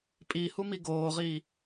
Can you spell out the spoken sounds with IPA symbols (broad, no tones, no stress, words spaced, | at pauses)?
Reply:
pʼihumi ɡoːʁiː